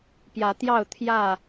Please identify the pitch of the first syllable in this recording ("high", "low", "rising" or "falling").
rising